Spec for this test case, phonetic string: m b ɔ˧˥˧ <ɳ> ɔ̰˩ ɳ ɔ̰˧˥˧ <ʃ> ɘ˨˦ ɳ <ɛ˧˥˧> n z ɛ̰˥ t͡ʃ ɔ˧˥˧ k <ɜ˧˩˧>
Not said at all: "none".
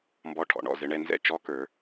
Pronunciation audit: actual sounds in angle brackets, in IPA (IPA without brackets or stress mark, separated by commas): ʈʰ, z, ɛ˧˥˧, ə˞˧˩˧